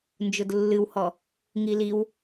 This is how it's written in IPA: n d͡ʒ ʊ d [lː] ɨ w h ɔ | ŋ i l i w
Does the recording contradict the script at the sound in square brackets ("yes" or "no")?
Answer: no